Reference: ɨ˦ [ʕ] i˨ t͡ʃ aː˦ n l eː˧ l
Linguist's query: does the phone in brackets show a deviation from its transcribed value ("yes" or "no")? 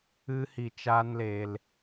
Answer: yes